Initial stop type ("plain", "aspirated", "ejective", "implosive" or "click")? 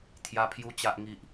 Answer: aspirated